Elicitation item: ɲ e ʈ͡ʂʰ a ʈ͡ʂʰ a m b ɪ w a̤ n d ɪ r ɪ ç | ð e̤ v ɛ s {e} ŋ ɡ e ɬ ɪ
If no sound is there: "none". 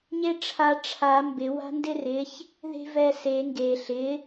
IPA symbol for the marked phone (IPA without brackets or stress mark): e